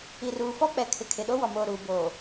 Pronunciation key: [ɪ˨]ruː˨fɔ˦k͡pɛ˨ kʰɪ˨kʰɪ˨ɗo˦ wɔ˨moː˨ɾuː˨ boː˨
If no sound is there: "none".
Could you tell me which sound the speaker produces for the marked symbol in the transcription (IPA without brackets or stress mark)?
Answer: i˨